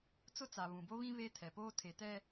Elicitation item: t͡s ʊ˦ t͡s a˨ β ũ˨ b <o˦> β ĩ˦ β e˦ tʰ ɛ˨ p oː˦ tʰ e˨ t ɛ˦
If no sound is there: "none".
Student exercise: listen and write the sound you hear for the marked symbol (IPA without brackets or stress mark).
o˦